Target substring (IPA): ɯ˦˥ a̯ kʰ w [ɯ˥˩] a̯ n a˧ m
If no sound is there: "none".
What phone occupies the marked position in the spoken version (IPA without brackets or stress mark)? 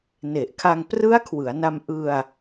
ɯ˩˦